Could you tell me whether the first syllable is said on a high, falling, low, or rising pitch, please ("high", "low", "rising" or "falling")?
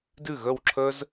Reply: falling